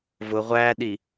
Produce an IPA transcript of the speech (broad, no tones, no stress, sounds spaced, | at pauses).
v ʊ ʁʷ æ ɗ i